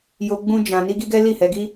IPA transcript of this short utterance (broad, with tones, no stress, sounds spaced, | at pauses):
j o˧ ɡ͡b ũ˦ d͡ʒ ã˧ n i˦ ɡ i˦ ɡ ɛ˦ l i˦˨ h ɛ˧ ɡ i˦